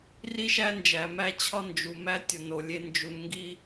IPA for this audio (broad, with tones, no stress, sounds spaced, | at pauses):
r i˦ ʃ æ˦ n d͡ʒ æ˨ m æ˦ t͡ɕʰ ɒ˦ n d͡ʒ u˨ m æ˦ tʲ ɒ˨ n o˨ lʲ e˦ n d͡ʒ u˨ n ŋ ɡ i˦